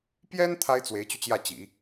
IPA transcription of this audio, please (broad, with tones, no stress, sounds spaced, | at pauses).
p j ɛ˥ n t̪ʰ a˥ ɪ̯ t͡s w e˧˥ ɪ̯ t͡ɕ y˧ t͡ɕ j ä˥˩ t͡ɕ ḭ˨˩˦